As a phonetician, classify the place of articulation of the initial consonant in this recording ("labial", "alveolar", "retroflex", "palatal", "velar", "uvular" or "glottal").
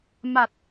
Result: labial